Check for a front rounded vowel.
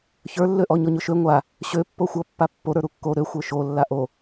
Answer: present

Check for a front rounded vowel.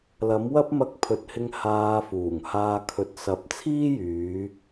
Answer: present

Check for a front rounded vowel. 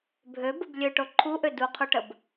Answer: present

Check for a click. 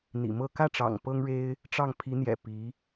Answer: absent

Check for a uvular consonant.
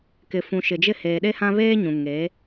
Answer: absent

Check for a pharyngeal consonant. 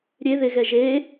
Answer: absent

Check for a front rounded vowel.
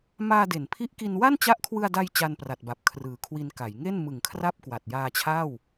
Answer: absent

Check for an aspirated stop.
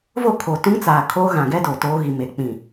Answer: present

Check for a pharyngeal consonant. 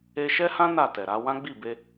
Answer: absent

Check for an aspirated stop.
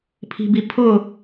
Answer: present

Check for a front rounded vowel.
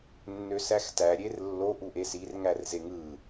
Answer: present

